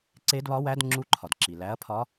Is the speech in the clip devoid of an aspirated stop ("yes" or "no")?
no